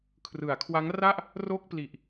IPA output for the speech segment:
kʰ r ɯ˩˦ a̯ kʰ w a˦˥ ŋ r a˥˩ ʔ | r o˥˩ k̚ p l i˨˩ ʔ

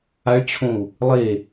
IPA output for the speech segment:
a ɭ t͡ɕʰ õ u̯ | lˠ e

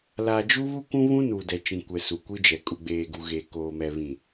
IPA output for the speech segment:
l a˨ d͡ʒ u˦ β u˦ kʷ ũ˦ β ũ˦ n uː˨ d ɛ˨ t͡ʃ ĩ˨ kʷ ɛ˨ s u˨ kʷ i˦ d͡ʒ ɛ˨ kʼ u˨ ɡ͡b eː˨ ɡ u˨ ɣ eː˨ k oː˨ m ɛ˨ β ĩ˨

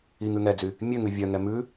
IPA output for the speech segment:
i ŋ ʉ ŋ ɛ d͡z y | mʲ ø ŋ ʉ vʲ œ ŋ ɛ m ʉ

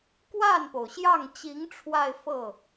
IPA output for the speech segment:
k w a˥˩ n p o˩ ʊ̯ ɕ j ɑ˥˩ ŋ t͡ɕ i˧˥ ŋ ʈ͡ʂʰ w a˥˧ ɪ̯ f ɤ˥˩

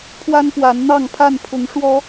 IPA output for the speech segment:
pʰ w a˦ n p w a˨˦ n n̪ ɑ˥˨ ŋ pʰ a˥˨ n pʰ ʊ˨˦ ŋ ʂ w ɔ˨˦

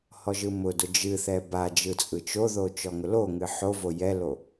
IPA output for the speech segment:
h ɔ ʒ ɯ m ʊ d ʊ d͡ʒ ɨ θ ɛ b a d͡ʒ ɯ t͡sʼ ɯ t͡ʃ o ð o t͡ʃ ɔ ŋ ʊ l o ŋ ɨ ħ o v o j ɛ l o

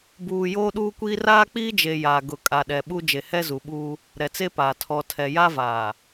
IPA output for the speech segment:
b uː˨ j oː˦ ɗ uː˦ kʷ iː˦ r aː˦ k͡p iː˦ d͡ʒ e˨ j aː˨ ɡ ʊ˨ kʼ a˨ ɗ ɛ˨ ɓ u˦ d͡ʒ e˨ h ɛ˦ z u˨ ɓ uː˦ | ɾ ɛ˨ t͡s e˦ p aː˨ tʰ ɔ˨ tʰ ɛ˨ j a˦ v aː˨

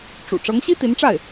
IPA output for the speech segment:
ʈ͡ʂ ṵ˨˩ ʈ͡ʂ ɤ˧˥ ŋ ɕ i˥ t̪ i˧˥ n ʈ͡ʂ a˥˩ ɪ̯

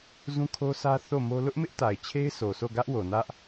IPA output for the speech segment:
z ũ˦ kʰ o˦ sʰ ä˦ θ o˦˨ m o˦ l ʊ˦ ʔ m ɪ˦ ʔ t a˨ ɪ̯ t͡ɕʰ e˦ ɪ̯ s o˨ sʰ o˦˨ ɡ ä˦ ʔ w o˨ n ä˦ ʔ

